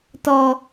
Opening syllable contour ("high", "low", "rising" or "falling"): high